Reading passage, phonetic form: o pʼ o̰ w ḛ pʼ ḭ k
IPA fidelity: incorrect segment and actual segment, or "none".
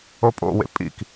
none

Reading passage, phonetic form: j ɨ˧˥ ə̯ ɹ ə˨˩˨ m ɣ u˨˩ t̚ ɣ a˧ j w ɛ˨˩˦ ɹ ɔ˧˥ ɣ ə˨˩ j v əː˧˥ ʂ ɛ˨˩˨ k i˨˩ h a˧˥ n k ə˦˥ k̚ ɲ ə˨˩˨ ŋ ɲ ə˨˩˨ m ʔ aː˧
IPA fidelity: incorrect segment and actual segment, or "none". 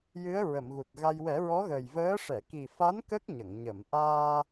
h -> f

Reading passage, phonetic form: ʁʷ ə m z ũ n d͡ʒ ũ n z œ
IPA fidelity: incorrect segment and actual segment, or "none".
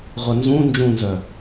m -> n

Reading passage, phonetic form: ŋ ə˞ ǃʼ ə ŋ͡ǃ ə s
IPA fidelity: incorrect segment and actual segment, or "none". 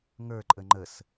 none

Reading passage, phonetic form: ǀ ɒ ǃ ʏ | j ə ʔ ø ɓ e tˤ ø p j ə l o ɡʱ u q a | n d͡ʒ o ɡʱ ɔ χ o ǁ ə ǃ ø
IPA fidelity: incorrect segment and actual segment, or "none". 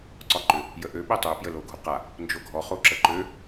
none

